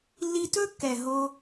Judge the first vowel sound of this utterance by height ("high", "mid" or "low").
high